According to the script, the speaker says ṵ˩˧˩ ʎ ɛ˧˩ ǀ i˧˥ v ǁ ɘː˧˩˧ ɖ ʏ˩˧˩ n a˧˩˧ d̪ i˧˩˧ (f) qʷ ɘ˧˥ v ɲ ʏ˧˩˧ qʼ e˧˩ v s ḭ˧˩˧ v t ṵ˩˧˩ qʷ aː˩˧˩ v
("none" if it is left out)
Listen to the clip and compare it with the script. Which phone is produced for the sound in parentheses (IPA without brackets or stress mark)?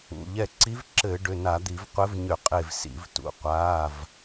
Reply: v